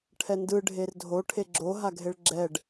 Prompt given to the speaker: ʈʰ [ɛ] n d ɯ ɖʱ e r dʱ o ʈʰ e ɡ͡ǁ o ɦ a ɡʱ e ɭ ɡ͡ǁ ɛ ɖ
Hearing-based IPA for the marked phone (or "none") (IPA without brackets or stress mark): ɛ